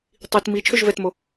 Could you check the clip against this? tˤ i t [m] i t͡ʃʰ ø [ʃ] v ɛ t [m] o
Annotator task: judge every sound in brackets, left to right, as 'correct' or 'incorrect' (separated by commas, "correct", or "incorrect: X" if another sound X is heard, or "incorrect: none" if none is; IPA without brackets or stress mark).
correct, incorrect: ʒ, correct